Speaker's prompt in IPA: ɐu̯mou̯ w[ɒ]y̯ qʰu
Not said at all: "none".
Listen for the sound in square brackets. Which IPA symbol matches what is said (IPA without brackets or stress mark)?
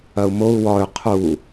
ɒ